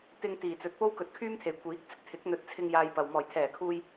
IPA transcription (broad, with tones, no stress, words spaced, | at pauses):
t̪ɪ˧ŋ t̪iː˨˩t͡sɵ˨t̚po˥w kɵ˨˥t̚kʰyː˥mt̪ʰe˨˩j kʷiː˨˥k̚t͡sɪ˥k̚t̪ʰɪ˨˥k̚ n̪ɵ˨t̚t͡sʰɪ˧ŋ jaː˧jpɐ˨w mɔː˨˩jt̪ʰɛː˨˩kʰuː˧j